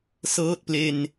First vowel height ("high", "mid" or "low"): mid